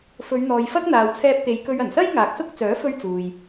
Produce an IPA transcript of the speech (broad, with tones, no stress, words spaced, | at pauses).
fɵ˨˧ɥn̪ɔː˨jfɐ˥k̚ n̪aː˨wt͡sʰɛː˧p̚t̪e˨˧jkɵ˧ɥ ɐ˨˩nsɐ˥j ŋaː˨k̚sʊ˥k̚ t͡sœː˨˥fɵ˧ɥ t͡suː˨j